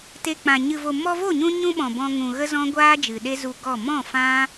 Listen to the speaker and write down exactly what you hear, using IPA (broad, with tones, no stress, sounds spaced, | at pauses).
t e˧ k͡p ã˨ ɲ ɨ˨ v o˨ m ɔ˧ v o˦˨ ɲ ũ˧ ɲ ũ˧ ɓ ɔ̃˨ b ɔ̃˧ ŋ ũ˨ ɣ ə˦ z ɔ̃˦ ɡʷ aː˦ d͡ʒ ɨ˨ ɗ e˦ z u˧ ɡ ɔ˦˨ m ɔ̃˦˨ f ã˦